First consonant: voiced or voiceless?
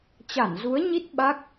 voiceless